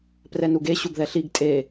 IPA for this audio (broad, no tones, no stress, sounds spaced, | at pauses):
p r ɛ n u ɡ e ɕ u ɡ ð ɛ ɬ i ɡ tʼ e